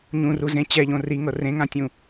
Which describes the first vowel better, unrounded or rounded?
rounded